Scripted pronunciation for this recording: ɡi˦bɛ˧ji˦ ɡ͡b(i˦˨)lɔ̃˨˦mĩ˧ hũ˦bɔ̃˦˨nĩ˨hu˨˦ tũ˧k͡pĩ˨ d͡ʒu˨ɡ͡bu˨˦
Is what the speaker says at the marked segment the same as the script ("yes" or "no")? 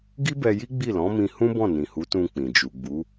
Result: yes